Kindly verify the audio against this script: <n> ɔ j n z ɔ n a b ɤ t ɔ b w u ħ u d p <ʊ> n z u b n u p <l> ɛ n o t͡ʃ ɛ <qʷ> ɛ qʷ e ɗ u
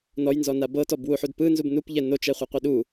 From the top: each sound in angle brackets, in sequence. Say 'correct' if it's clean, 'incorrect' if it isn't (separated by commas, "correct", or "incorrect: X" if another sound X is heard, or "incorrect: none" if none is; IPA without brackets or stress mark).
correct, incorrect: ɯ, incorrect: ʎ, incorrect: χʷ